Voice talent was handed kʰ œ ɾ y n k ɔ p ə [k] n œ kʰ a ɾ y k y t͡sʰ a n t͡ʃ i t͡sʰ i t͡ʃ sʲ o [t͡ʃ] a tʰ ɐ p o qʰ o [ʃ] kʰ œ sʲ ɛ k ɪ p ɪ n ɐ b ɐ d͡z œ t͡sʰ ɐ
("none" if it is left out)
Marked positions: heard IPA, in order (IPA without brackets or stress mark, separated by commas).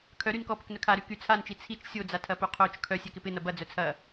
k, d͡z, t͡ʃ